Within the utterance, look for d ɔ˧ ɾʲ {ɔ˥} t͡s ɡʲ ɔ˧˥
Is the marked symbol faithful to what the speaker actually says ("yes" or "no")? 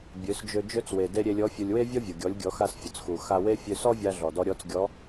no